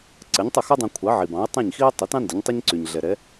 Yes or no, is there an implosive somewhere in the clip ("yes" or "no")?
no